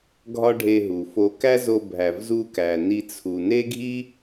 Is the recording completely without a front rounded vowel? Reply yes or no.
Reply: yes